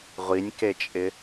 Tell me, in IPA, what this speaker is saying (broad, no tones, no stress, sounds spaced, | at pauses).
ʁʷ i nʲ k e t͡ʃʼ ɪ